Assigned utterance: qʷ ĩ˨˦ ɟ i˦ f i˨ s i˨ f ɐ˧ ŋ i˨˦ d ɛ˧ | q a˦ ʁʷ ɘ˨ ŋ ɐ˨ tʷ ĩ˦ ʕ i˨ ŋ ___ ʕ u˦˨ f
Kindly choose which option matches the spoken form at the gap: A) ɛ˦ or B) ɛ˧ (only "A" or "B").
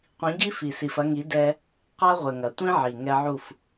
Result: B